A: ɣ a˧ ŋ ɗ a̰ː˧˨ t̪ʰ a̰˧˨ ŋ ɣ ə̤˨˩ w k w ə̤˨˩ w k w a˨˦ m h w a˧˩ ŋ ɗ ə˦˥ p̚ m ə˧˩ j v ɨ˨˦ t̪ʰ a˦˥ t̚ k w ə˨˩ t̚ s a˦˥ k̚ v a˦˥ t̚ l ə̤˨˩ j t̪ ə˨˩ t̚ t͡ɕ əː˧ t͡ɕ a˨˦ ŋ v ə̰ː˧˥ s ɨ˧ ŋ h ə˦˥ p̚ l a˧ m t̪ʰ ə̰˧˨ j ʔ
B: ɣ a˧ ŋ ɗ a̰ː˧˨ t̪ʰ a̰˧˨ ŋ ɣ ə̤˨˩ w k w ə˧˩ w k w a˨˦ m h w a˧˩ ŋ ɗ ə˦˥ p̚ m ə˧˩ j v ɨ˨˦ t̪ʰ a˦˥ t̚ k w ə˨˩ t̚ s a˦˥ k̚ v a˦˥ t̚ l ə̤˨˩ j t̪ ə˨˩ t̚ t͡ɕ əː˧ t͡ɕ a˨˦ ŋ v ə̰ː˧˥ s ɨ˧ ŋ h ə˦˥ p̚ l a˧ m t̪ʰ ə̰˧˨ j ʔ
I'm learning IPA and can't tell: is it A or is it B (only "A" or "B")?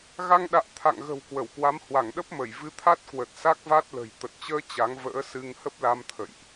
B